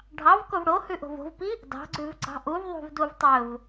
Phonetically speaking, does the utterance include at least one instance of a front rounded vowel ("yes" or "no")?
no